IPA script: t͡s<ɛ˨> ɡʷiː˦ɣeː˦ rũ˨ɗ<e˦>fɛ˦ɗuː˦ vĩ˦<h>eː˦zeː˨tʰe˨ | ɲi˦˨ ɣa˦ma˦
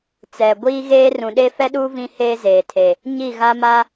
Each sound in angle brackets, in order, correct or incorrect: correct, correct, correct

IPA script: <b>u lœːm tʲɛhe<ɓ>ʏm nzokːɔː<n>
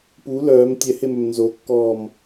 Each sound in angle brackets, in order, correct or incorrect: incorrect, incorrect, incorrect

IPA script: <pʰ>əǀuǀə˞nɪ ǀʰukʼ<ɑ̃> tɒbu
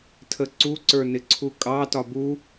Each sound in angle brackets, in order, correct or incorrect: incorrect, incorrect

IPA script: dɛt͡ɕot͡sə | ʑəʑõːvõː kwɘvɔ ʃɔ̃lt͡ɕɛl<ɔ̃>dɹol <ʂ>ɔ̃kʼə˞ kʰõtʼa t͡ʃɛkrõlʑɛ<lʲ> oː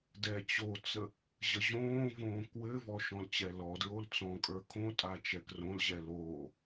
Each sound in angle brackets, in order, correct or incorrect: incorrect, incorrect, incorrect

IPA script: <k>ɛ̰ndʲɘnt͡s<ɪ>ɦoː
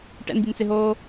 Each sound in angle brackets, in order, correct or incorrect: incorrect, correct

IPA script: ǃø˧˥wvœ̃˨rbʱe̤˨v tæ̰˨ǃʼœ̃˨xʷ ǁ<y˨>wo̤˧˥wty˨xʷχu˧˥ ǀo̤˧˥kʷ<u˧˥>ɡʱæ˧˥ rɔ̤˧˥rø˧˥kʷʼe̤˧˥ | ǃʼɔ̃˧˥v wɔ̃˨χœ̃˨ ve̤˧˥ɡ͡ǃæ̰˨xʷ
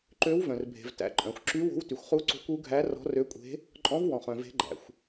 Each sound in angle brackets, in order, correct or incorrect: incorrect, correct

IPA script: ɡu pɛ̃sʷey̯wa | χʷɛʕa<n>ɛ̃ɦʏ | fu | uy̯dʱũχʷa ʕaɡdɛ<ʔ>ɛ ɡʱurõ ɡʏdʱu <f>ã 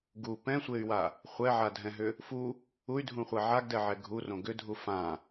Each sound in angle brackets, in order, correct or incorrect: incorrect, incorrect, correct

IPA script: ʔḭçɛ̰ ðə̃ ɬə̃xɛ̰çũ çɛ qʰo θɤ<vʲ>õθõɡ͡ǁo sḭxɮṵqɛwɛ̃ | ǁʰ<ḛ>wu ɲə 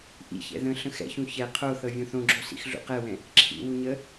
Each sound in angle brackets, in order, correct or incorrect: correct, incorrect

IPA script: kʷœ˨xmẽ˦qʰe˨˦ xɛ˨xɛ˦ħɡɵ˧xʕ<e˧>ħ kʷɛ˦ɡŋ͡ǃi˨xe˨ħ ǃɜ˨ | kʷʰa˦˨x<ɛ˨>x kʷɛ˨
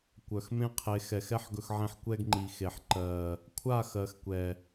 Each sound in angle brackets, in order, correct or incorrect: incorrect, incorrect

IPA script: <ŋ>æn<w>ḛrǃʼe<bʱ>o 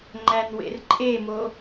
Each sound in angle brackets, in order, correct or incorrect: incorrect, correct, incorrect

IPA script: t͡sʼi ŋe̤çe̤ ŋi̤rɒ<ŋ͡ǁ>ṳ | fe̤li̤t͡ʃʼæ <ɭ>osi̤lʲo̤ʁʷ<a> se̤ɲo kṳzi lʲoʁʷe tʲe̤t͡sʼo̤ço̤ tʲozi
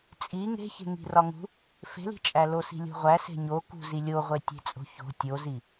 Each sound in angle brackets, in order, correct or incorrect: incorrect, incorrect, incorrect

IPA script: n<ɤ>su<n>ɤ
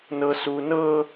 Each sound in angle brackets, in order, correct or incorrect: correct, correct

